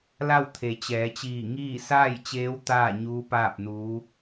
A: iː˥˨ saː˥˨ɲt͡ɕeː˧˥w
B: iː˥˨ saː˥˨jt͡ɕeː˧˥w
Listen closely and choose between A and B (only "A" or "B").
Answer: B